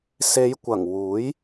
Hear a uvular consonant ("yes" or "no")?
no